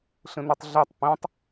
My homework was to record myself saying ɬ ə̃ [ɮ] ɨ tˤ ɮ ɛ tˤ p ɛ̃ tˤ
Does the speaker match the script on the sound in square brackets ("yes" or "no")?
no